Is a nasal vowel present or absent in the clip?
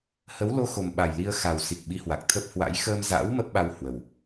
absent